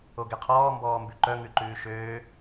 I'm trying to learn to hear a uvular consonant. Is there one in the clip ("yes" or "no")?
yes